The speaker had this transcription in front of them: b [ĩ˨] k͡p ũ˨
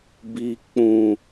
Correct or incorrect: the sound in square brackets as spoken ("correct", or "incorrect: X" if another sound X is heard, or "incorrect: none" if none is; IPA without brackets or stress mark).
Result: incorrect: i˨